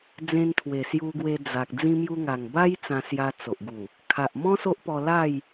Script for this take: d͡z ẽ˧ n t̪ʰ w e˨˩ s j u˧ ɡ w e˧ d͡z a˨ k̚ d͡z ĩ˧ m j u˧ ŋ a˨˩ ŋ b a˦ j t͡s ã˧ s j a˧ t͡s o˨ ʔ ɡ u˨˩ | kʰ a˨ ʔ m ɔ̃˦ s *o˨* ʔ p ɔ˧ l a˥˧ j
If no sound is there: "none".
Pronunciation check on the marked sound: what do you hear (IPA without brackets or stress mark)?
o˦